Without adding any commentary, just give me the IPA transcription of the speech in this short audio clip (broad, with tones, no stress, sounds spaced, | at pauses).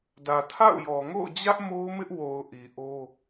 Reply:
d ä˨ tʰ a̰˦˨ ʊ̯ j ɔ˨ ŋ o̰˦˨ ʊ̯ d͡ʑ ä˦ ʔ m o˦ ʊ̯ m ɪ˦ ʔ w o˨ ʊ̯ ʔ i˨ ʔ o˦